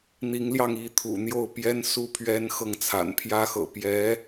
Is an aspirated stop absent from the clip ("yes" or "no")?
no